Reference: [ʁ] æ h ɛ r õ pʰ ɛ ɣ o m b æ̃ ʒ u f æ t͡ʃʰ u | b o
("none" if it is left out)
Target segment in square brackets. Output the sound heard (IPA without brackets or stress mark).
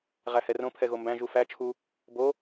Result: ʁ